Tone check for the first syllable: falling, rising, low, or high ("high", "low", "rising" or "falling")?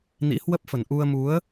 rising